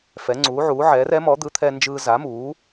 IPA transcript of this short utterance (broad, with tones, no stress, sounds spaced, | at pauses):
f ɛ˨˥ ŋ͡ǀ uː˨˥ ʕ uː˨˥ ʕ ɛː˨˥ r ɛ˨˥ m ɔ˨˥ d̪ ɯ˨˥ t̪ʰ ɛ˥ n d͡ʒ ɯː˥ z a˨˥ m uː˨˥